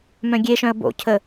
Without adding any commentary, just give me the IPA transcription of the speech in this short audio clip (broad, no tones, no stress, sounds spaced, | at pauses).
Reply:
m œ̃ ɡʲ e ʃ œ̃ ə̯ b o̰ cʰ ə